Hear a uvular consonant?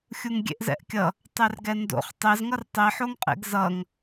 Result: yes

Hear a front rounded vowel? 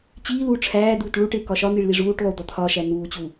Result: no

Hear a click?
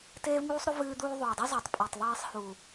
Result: no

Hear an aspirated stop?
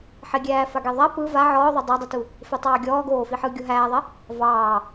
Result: no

